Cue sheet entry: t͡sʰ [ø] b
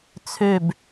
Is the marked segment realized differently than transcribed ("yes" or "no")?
no